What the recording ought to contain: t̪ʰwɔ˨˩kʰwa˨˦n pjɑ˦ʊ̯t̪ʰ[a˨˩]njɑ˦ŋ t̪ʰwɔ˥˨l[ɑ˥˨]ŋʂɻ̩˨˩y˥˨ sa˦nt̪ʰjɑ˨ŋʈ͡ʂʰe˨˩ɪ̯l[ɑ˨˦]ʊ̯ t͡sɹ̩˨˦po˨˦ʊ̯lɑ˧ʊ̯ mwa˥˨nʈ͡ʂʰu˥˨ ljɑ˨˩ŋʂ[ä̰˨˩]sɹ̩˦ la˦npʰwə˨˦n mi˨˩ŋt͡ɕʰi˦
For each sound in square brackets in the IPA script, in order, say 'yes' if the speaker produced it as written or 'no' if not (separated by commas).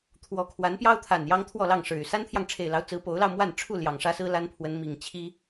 yes, yes, yes, no